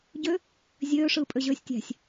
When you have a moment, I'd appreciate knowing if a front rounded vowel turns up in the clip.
yes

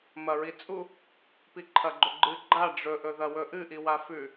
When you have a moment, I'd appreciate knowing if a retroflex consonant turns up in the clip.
yes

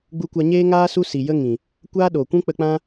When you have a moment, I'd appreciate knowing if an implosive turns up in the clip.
yes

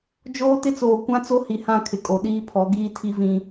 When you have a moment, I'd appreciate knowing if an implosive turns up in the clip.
yes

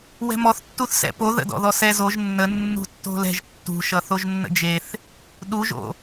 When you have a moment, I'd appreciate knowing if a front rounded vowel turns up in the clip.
no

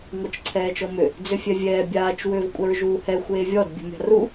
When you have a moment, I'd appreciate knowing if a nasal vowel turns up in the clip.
no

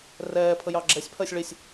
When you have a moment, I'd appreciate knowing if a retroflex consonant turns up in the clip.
yes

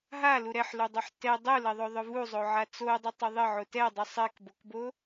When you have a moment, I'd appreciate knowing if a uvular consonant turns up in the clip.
no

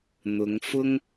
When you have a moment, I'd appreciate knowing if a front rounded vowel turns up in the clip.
no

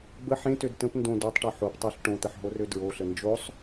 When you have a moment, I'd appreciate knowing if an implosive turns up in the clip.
no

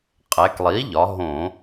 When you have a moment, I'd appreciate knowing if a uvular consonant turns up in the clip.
yes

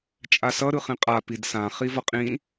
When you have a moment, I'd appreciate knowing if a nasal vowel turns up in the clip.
yes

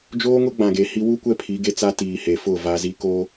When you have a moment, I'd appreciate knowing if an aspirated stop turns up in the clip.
yes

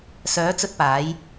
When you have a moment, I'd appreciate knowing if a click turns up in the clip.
no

